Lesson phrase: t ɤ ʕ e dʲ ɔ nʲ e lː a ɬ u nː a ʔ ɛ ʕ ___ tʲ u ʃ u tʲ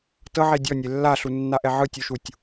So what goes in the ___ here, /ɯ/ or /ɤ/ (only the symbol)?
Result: ɯ